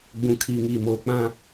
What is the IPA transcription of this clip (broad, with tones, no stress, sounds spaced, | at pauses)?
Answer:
ɡ͡b ũ˨ kʰ iː˨ ŋ iː˨ m oː˨ k͡p ã˦